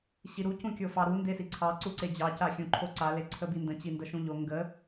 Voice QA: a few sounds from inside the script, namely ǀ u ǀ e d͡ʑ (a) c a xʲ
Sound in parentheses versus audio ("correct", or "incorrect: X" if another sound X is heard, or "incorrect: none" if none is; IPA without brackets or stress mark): incorrect: ɑ